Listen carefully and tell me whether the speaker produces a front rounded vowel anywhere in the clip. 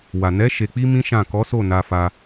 no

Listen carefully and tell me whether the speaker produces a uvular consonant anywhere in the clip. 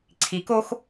no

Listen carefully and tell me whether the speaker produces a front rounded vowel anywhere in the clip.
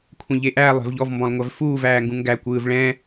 no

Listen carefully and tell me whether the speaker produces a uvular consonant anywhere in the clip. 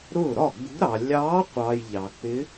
yes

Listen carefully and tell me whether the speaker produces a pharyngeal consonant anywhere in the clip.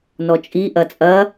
no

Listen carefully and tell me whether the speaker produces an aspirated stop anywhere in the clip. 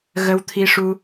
yes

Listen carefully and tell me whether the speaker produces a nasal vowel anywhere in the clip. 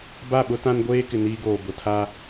yes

